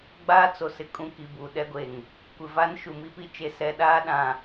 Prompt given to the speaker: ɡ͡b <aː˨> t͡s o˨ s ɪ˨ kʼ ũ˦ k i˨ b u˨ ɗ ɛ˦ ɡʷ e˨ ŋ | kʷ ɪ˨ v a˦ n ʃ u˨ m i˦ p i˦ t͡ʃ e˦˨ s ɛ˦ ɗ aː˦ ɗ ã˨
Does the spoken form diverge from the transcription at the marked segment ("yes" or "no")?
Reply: yes